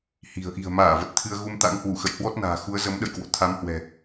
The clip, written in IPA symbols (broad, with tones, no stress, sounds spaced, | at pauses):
h i̤˨˩ ə̯ ʔ i̤˨˩ ə̯ m aː˧˩ v ə˨˩ t̚ t̪ʰ ɨ˧ ə̯ ɣ u˧ m t̪ a̰˧˥ ŋ h w u˧˩ x ə̰˧˨ j h w ɔ˦˥ t̚ n a̤ː˨˩ x u˨˦ ə̯ z ə˨˦ m ɗ ə̰˧˨ j k w o̰˧˨ t̪ʰ a˨˦ m h w ɛ̤˨˩